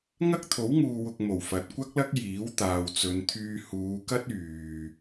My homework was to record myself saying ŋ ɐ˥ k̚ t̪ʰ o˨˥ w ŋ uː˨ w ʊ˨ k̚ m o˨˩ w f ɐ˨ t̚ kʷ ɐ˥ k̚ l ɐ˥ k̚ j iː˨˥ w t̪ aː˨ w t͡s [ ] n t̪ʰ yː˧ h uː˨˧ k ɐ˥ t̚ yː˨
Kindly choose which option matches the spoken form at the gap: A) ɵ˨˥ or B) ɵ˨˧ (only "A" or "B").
B